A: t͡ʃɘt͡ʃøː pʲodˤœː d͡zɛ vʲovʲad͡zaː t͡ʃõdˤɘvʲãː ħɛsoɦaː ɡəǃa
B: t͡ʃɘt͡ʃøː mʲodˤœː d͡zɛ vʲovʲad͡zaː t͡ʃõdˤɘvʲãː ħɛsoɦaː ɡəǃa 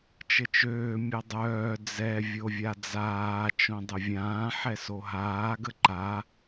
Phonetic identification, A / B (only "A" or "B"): B